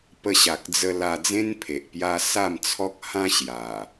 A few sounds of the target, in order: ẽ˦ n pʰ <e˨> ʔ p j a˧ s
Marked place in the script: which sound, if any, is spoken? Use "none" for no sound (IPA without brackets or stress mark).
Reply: e˨